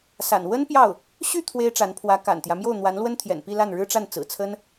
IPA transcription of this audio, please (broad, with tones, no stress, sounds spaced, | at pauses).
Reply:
s a̰˨˩ n w ə˥ n p j ɑ˥˩ ʊ̯ | ɕ y˥˩ t̪ʰ w e˥ ɪ̯ ʈ͡ʂ a˧˥ n pʰ w ä˧˥ k a̰˨˩ n t̪ j ä˦ m j o˥˩ ʊ̯ n̪ w a˧˥ n l w ə˥ n t̪ʰ j ɛ̰˨˩ n p i˥˧ l a˥˩ n ɻ ɻ̩˥ ʈ͡ʂ a˥˩ n t͡s ɹ̩˨˩ t͡sʰ ə˥ n